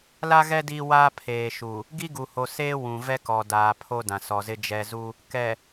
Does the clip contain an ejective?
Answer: no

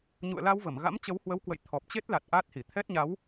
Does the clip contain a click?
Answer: no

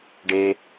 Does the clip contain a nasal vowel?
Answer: no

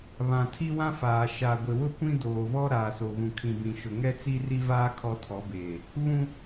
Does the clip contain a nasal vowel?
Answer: yes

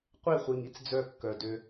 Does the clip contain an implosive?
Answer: no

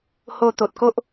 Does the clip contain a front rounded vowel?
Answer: no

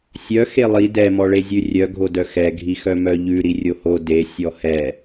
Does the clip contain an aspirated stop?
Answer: no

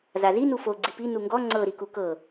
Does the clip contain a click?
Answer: yes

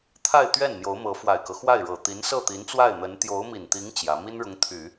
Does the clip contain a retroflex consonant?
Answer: yes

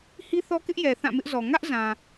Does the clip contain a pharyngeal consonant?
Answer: no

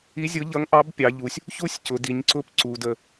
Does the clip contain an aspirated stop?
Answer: no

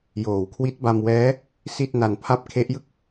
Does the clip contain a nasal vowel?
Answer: no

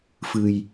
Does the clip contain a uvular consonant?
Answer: no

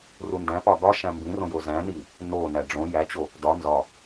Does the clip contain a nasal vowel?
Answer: yes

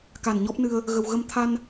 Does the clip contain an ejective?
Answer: no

